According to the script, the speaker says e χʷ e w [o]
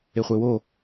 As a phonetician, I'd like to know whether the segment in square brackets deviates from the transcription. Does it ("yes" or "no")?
no